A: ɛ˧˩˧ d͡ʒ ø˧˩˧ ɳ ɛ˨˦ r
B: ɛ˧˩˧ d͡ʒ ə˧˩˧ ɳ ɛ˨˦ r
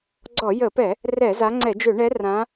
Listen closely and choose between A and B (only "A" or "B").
A